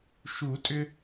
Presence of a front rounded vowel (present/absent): present